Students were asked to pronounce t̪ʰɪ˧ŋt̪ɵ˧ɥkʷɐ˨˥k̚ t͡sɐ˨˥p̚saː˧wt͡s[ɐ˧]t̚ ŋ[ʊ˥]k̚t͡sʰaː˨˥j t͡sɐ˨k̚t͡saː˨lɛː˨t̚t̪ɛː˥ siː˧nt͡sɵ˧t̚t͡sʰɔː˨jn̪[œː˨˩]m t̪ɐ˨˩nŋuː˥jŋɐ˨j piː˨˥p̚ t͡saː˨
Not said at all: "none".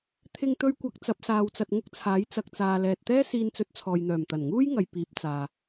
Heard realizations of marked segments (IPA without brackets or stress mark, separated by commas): ɐ˧, ʊ˥, œː˨˩